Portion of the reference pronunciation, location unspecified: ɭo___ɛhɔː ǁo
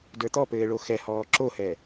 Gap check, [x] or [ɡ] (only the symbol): x